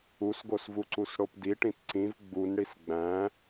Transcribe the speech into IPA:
u s ɡ o s v u ǀ u s ɽ o p d i ʈ ĩ t ǀ ĩ v ɡ͡b u n ɽ i s ɡ͡b æ̃

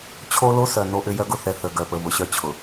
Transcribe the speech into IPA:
t͡ɕʰ o˦ l o˦ s œ˨ n o˦ ʔ ʏ˦ j œ˦ ɡ ʊ˨ θ ɛ˨ θ ə˨ ɡ œ˨ p ə˨ β ʊ˨ ɕ œ˦ t͡ɕʰ ʊ˨

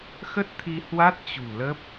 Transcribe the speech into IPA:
x ə˦˥ t̚ t̪ʰ i˧ h w a˦˥ t̚ t͡ɕ ṳ˨˩ l ə˦˥ p̚

